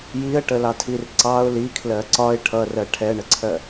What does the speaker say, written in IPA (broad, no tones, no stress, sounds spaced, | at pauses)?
j i ə̯ ʈ ə l ɑ tʰ i r ǀ ɑ ʊ̯ l i kʰ l ɜ ǀ ɒ ɪ̯ ʈʰ ʌ r ɜ ʈʰ ɛ ɳ ə ǀʰ ɜ